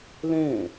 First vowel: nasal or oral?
nasal